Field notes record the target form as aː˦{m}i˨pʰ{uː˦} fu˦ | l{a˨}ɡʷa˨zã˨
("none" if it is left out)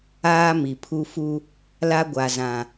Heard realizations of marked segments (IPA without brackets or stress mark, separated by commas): m, u˦, a˦